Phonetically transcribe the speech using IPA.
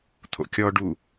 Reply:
t̪ʰo̰kʲɔɖu

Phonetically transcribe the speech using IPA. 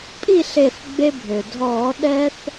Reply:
pʼi˥˨ɬe˧˩θ ɡ͡be˧bʱø˩dʱɔː˧˩˧ ɗɛ˧θ

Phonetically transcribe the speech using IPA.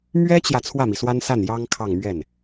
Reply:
mɥɛ˥t͡ɕjä˨ t͡sʰwä˥˩mi˩swa˥nsa˥˩n jɑ˥ŋkʰɑ˥˧ŋmɥɛ˥˩n

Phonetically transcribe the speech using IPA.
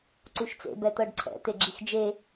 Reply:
ǀuʃt͡sḛ bɛt̪ɤɖǀʰɛ̰ t̪eɡ͡ǁixd͡ʒe

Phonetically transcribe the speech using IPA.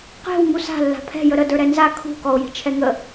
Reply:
qe̤w ŋusa̤ lːa̤pʰɛ̤ jəɾə də˞ɾɛnza kʰṳ kɔo̯je̤t͡ʃʰɛŋə

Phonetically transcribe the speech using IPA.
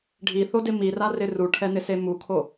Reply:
ɖʱiθodɪ mirarɪ ruʈʰɛn̪ɪse mukʰo

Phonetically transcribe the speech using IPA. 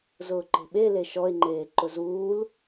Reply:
zʊːǃe̤ɓele ʃɔɪ̯ŋ͡ǃeː ǃʊzuːl

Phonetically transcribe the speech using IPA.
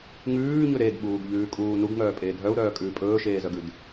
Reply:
ŋʉːɲɵ ɾedɓuːɡʎʉːkʼuː nuɡŋœːpʼeː dʱœu̯ɾœːkʼʉː pʼɵːʃeːzœɡʉd

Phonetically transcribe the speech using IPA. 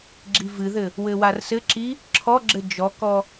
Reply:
ɡ͡ǁivɨðɘ | wɘwarsɘǁi | ǁʰɔɡ͡ǁɘ d͡ʒɔkɔ

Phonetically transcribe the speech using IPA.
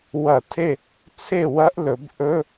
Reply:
wɐ˧˩˧tʰe˥˨ | t͡sʰe˥˨wɐ˦˥ʔlɵ˩˧bʔɵ˧˥˧

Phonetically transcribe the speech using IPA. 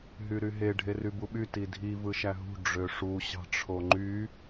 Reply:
ɦyɾyɦe ɖʱerybuɓy tidʱi vɯʃæɦṳ ɖ͡ʐøʂu ɕɑ̤ʈ͡ʂʰoŋ͡ǃy

